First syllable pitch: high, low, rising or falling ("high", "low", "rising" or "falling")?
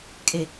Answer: low